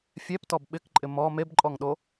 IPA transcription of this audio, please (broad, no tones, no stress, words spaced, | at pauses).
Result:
fʲɛptɔb ɓɪkǃʼɪ mɔ mebǃʼɔŋɗo